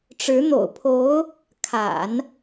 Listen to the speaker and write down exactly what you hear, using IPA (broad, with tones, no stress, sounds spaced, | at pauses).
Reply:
ʈ͡ʂ ɻ̩˧˥ n̪ o̰˨˩ ʊ̯ pʰ o˧˥ ʊ̯ | kʰ a̰˨˩˦ n